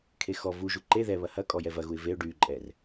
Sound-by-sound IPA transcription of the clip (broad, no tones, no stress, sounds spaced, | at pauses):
kʰ e x ɔ v u ʒ u ǃ e ð ɛ β ɐ h ɐ kʼ ɔ j ɛ v ɐ ɣ u ɪ̯ v e ʊ̯ ɖ y ǃʼ ɛ r